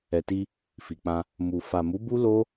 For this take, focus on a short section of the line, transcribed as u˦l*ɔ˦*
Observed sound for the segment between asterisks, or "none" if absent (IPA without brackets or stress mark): o˦